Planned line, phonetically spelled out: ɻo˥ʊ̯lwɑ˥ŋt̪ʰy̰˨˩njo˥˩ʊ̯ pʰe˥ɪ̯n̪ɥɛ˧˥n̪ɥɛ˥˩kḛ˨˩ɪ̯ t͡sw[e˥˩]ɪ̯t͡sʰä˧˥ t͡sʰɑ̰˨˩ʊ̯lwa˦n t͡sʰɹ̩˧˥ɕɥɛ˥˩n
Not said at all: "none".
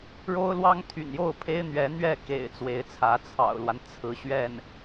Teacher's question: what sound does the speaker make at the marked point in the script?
e˧˥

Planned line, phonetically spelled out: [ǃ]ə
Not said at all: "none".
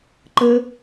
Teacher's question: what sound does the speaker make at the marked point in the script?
ǃ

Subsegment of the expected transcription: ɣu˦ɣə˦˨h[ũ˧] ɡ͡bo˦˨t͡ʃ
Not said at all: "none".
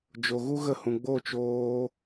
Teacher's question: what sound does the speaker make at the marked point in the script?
ũ˧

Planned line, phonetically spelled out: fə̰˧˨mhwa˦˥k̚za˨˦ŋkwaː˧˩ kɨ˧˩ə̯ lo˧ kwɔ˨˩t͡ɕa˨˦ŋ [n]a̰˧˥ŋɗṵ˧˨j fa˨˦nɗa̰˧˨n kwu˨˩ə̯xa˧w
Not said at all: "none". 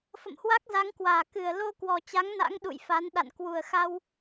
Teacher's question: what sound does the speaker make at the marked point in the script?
n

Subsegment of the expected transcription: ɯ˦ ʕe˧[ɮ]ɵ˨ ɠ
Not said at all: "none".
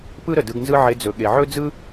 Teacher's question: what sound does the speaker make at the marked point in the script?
d͡z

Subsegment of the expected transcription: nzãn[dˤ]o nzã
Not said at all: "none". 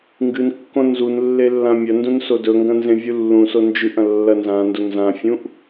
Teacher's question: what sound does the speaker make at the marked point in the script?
d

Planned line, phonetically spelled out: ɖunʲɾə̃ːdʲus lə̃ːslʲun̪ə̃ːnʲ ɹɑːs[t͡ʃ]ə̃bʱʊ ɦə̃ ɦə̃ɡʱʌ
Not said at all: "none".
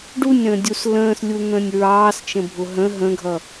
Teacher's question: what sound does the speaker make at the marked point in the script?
t͡ʃ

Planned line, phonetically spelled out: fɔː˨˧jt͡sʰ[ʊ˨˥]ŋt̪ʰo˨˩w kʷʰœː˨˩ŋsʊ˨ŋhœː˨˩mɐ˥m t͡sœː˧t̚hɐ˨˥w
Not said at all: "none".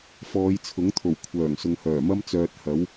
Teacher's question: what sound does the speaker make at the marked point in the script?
ʊ˨˥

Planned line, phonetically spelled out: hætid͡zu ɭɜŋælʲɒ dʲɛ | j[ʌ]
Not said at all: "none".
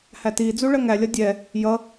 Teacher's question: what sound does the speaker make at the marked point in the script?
ʌ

